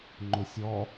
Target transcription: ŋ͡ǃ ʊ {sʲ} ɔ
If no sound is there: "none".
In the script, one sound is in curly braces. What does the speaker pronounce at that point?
sʲ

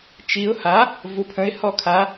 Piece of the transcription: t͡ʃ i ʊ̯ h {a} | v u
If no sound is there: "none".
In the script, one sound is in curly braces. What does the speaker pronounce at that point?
a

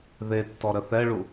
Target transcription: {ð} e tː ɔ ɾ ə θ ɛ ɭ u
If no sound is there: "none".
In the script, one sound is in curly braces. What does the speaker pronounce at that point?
ð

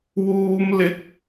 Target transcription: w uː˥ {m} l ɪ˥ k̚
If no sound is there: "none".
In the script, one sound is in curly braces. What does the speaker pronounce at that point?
m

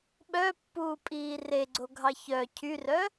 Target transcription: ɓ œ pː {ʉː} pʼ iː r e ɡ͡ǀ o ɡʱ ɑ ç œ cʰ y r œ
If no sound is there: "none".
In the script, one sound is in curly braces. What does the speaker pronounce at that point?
uː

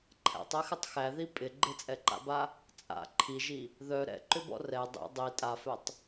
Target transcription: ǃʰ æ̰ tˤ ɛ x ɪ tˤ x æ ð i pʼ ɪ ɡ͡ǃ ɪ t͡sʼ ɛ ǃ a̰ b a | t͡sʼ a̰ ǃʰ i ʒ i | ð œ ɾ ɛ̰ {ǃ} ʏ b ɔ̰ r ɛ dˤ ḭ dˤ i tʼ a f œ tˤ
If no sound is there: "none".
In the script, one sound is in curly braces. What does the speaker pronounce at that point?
ǃ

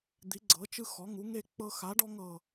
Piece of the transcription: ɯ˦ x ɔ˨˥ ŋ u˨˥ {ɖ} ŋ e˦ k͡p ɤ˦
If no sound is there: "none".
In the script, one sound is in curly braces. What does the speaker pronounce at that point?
none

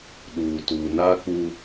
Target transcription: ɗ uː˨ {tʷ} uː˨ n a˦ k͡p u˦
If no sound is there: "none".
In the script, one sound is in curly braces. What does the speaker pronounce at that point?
t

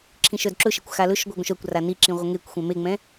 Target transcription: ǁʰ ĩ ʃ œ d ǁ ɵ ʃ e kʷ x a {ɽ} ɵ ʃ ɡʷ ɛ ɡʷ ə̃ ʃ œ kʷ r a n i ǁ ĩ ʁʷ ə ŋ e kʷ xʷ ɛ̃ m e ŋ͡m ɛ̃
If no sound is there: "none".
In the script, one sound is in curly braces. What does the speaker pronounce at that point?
l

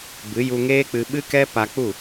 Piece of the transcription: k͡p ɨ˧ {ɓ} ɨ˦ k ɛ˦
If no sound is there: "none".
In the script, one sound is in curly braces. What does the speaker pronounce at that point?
ɓ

